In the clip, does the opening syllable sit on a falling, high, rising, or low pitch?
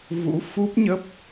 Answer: rising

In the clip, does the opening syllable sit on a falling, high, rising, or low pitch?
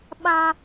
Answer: high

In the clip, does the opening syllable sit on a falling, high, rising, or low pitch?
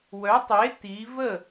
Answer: rising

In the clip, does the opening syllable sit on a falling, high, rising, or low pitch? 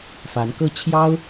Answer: rising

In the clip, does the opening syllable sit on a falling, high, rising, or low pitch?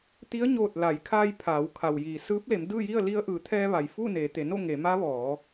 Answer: rising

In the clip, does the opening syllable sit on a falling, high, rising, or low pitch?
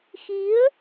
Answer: rising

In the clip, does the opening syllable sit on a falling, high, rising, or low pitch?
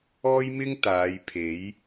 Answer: high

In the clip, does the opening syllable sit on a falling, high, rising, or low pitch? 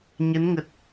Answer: rising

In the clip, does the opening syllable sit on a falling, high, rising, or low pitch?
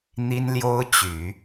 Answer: high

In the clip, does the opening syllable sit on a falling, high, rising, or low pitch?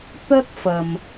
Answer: high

